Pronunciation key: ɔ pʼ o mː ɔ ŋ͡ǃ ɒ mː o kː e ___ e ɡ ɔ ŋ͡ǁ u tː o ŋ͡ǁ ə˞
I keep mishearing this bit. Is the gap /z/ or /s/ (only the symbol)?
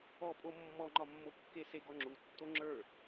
s